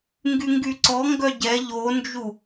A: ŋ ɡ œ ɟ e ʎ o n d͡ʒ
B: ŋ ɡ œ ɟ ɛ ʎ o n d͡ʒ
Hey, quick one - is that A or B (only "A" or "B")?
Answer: B